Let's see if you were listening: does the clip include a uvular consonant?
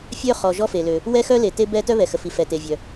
yes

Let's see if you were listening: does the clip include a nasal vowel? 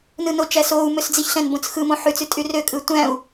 yes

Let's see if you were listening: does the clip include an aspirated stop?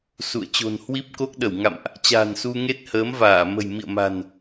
no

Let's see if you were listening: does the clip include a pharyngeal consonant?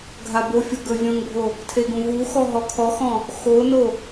no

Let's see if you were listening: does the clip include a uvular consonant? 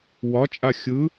no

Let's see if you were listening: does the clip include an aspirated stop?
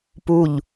no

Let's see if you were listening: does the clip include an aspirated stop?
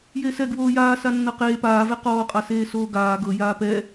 no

